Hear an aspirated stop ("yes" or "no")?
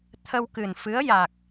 yes